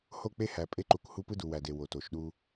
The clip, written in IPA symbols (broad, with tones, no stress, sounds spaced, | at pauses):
h o˦˨ k͡p e˦ h æ˨ pʼ e˦ ǃ u˨ k h u˦ p ɯ˦ d u˨ w æ˨ d e˨ w o˨ t o˨ ʃ ɗ u˦